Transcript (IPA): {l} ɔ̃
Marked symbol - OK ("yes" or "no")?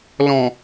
yes